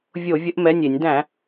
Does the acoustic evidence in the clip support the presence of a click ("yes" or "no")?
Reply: no